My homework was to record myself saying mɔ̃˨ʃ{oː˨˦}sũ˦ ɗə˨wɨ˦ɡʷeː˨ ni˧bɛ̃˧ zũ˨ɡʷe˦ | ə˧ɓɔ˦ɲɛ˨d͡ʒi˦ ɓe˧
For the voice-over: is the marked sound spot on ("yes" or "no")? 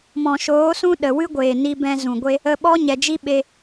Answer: yes